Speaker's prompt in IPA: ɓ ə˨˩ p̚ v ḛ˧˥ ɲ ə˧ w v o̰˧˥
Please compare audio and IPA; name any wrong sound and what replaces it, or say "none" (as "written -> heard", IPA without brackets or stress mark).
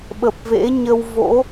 none